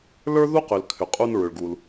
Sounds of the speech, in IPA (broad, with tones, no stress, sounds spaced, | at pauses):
l ə˞˥ ð u˥ q ʏ˩ l kʰ ʏ˩ qʼ u˧ n ɹ ʏ˩ ɭ ɡ u˩ l